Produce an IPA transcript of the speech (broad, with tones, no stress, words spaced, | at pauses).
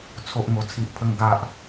t͡sʰo˦ʔŋo˧ t͡sʰi˦ʔpʰə˦ŋ ɡa˦ʔ